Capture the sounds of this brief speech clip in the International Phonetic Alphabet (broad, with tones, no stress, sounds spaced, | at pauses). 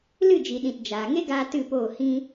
l ɨ˦˨ d͡ʒ i˨ ɗ ĩ˨ t d͡ʒ aː˨ ŋ e˦ ɡ aː˧ t ɨ˦˨ p oː˦˨ h ĩ˦